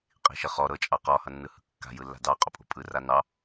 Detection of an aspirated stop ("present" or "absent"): absent